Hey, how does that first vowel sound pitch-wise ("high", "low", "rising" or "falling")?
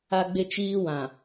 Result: high